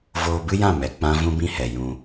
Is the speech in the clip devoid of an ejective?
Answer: yes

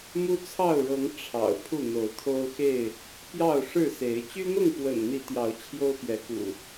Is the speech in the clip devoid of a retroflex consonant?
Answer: no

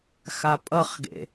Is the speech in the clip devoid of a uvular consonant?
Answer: no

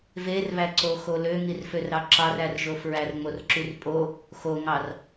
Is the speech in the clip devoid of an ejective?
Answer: no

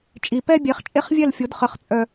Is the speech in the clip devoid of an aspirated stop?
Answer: yes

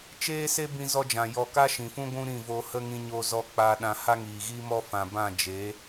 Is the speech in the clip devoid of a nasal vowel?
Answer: no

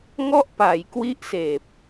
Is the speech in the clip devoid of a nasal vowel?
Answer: yes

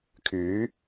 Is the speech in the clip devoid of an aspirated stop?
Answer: no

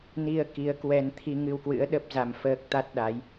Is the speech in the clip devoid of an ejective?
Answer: yes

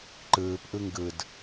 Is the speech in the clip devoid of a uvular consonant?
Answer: yes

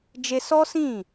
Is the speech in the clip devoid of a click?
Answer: yes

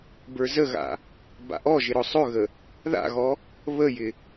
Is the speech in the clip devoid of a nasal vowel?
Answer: yes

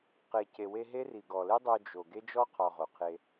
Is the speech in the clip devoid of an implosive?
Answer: yes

